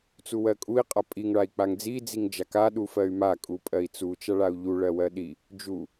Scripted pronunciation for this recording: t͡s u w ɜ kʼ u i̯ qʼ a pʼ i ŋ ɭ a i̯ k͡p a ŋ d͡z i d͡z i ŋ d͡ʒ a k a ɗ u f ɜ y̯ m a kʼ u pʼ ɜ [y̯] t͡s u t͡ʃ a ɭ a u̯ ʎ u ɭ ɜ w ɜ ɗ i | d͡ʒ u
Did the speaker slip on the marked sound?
yes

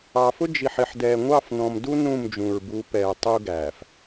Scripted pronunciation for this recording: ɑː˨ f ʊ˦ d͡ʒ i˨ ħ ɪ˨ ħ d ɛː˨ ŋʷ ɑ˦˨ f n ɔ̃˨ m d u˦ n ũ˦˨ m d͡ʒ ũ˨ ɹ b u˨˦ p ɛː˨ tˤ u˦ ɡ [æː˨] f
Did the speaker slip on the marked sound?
no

